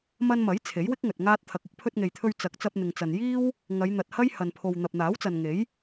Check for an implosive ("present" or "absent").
absent